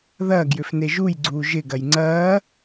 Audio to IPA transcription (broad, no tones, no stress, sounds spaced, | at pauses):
ð ɐː ɡ j ʏ f n e ʒ u j ɡ͡ǀ uː ʒ ɪ ɡ ɐ j ŋ͡ǀ ɐː